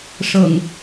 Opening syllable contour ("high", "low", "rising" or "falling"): low